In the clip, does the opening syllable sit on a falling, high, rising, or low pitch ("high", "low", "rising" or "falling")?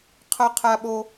high